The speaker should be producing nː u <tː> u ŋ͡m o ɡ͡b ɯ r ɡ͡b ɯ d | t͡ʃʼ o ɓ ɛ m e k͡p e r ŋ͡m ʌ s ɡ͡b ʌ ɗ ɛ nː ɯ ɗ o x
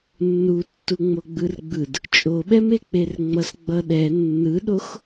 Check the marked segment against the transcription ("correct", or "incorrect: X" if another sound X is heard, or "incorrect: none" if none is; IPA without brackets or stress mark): correct